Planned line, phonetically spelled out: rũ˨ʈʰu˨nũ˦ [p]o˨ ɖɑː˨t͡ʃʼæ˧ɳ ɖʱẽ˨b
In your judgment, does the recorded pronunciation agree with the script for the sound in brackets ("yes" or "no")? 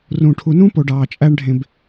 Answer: yes